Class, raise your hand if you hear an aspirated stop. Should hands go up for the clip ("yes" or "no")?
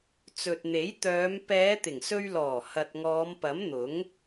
no